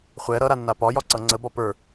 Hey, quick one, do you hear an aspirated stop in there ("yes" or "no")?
no